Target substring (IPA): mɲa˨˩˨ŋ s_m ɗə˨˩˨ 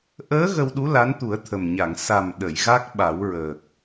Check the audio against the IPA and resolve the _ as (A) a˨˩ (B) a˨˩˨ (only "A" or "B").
A